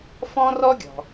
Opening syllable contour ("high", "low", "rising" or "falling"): high